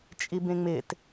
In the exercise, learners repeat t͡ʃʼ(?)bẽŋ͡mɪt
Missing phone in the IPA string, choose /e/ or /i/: i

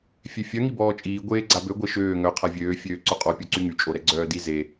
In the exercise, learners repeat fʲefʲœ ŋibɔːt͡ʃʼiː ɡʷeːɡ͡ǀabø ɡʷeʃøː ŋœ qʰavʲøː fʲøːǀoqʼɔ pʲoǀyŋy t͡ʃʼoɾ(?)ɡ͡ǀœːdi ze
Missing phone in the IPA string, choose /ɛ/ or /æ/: ɛ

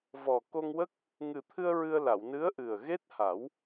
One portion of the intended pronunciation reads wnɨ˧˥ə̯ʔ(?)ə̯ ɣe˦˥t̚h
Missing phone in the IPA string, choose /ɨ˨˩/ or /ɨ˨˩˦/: ɨ˨˩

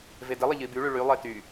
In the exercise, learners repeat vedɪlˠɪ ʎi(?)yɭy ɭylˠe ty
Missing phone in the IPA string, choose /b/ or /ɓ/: b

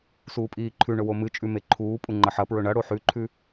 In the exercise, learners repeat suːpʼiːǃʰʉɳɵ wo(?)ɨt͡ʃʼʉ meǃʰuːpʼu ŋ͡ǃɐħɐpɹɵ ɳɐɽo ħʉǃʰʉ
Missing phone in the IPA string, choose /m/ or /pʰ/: m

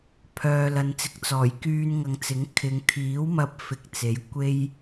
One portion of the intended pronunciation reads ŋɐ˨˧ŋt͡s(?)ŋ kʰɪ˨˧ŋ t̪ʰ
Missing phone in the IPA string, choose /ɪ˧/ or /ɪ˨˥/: ɪ˨˥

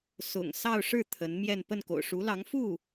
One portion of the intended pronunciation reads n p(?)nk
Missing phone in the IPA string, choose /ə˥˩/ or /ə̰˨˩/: ə˥˩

